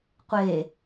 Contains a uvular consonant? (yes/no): yes